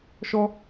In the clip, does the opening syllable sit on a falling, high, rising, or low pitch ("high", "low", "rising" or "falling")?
high